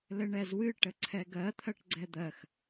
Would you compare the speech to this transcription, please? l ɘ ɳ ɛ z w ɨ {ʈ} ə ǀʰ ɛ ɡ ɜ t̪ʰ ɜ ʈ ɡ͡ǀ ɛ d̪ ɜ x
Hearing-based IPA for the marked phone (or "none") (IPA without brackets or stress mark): ʈ